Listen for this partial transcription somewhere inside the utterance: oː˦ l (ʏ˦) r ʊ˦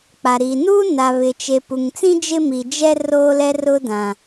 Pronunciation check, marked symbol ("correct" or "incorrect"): incorrect